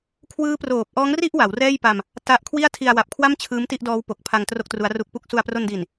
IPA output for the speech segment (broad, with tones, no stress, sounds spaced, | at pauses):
kʰ w ɯː˦˥ p r oː˨˩ p̚ ʔ ɔː˦˥ ŋ r i˥˩ ʔ w a˩˦ w r ɛː˥˩ j p a˧ m | t a˦˥ ʔ kʰ w i˥˩ a̯ tʰ i˧ a̯ w a˨˩ p̚ kʰ w a˥˩ m t͡ɕʰ ɯː˦˥ m t i˥˩ ʔ d ɔː˦˥ w p o˨˩ k̚ pʰ a˧ ŋ t r o˥˩ k̚ t r u˦˥ a̯ r u˦˥ k̚ p u˥˩ k̚ s u˧ a̯ p r o˧ n d i˨˩ n